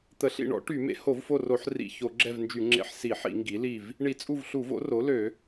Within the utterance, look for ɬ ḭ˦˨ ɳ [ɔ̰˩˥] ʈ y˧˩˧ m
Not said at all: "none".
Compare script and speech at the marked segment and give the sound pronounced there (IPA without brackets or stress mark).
ɔ̰˩˥